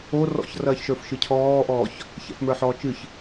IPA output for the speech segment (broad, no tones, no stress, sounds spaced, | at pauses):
o r ɔ̰ ç r ɐː ç ʃ ə˞ f ʃ ɨ cʰ ɔː ʔ ɔː ç | ç ɛ̰ f m ə˞ ħ ɔː t͡ʃ ɨ ç